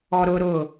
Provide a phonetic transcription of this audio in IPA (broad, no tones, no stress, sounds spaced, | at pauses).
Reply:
ɔ ɾ ʊ ɾ ʊ